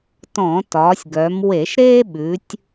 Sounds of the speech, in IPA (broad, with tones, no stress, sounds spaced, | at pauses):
t ɔ̃˧˩˧ t ɒː˩˧ sʲ ɡ œ˩˧ m w e˧˩˧ ʃ ɾ eː˥ ɓ ʉ˩˧ tʲ